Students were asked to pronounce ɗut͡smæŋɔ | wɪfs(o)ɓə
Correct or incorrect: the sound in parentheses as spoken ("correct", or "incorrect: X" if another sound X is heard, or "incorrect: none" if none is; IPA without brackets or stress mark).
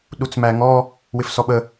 incorrect: ɔ